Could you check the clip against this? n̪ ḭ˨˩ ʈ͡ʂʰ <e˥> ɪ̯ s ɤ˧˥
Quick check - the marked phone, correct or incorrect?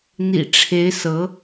incorrect